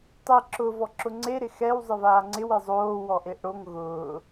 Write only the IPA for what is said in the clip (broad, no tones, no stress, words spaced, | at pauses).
tˤi ǁʊ vɔǁʊŋ͡ǀe ɾɪxɛw zˤɪvaːŋ͡ǀɪw ezˤoː wɔʔeʔɽoŋ ɣʊː